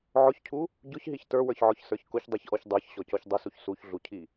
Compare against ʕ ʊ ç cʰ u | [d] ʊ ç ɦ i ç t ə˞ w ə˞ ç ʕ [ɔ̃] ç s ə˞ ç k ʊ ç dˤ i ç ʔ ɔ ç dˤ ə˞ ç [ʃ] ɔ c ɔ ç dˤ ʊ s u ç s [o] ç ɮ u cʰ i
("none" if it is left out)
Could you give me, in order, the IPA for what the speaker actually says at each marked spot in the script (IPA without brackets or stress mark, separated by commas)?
ɟ, ɔ, ɕ, u